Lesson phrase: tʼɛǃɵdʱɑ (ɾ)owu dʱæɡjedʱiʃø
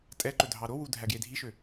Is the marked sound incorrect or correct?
correct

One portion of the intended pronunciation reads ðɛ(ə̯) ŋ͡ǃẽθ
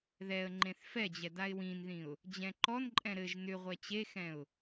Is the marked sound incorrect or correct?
correct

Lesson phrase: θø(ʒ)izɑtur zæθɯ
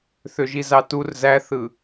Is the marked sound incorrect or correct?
correct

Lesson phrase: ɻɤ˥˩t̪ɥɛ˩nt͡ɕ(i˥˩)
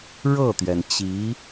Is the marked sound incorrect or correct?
incorrect: i˧˥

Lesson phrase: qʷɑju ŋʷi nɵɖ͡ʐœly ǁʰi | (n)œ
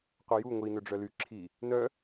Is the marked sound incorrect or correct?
correct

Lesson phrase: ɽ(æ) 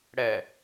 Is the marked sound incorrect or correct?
incorrect: ɛ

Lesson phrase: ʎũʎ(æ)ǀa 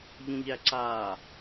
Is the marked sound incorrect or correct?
correct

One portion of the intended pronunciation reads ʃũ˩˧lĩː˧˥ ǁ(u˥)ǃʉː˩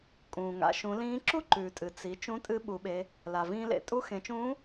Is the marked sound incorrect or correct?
correct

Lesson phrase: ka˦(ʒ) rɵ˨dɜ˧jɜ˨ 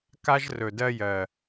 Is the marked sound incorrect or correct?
correct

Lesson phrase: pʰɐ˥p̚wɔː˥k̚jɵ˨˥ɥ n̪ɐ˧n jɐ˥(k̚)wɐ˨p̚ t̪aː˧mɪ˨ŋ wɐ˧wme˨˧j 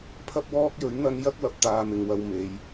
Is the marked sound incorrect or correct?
correct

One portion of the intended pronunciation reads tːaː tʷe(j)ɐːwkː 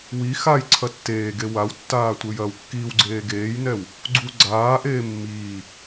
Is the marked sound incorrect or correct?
correct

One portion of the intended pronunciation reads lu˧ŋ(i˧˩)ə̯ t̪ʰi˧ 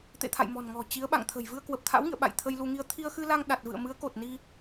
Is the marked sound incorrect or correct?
incorrect: i˧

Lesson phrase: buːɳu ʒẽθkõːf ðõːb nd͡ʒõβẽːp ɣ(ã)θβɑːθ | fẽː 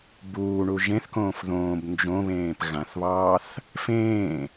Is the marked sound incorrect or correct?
correct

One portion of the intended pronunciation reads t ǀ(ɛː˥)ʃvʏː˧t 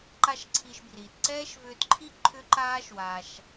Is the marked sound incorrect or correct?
correct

